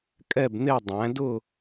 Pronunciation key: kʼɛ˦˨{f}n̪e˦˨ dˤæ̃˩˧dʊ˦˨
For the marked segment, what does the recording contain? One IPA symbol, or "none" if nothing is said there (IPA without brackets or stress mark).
b